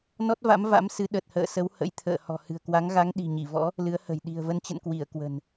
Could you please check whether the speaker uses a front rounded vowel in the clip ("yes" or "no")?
no